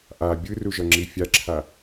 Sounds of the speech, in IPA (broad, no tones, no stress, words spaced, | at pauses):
ʔa bʲɯruʒʌŋ͡ǁi fʲaǁʰa